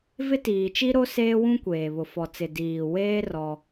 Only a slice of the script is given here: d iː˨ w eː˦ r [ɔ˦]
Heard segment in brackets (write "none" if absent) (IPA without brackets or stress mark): ɔ˦